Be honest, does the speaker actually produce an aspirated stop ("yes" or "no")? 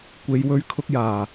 yes